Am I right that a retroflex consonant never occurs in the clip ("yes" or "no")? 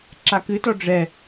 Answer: no